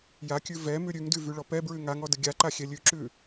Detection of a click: present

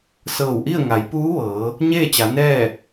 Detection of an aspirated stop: absent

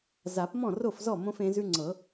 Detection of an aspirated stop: absent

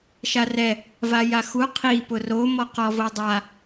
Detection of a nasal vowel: absent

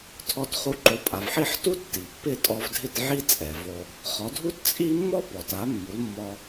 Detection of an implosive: absent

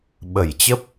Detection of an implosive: present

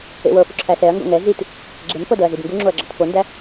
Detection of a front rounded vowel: absent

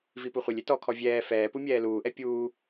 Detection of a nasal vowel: absent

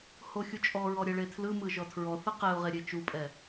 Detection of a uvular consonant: present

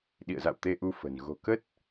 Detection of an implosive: present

